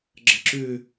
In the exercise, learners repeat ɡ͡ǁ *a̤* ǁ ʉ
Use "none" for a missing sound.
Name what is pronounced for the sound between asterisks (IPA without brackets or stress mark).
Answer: ə̤